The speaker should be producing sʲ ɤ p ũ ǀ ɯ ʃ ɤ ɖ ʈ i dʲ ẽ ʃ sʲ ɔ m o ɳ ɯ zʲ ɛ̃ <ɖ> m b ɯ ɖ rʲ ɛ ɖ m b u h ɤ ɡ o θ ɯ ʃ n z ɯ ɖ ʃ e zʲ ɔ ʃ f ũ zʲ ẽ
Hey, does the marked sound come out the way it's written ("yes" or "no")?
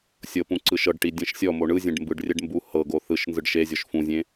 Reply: yes